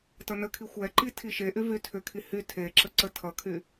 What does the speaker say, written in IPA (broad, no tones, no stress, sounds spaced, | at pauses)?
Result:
t ʌ n ə kʰ i xʷ ɛ ǃ i tʰ i ʃ e ʔ y v y tʰ ʏ kʰ i h y tʰ e ǁ ə ǀ ə tʰ ʌ kʰ y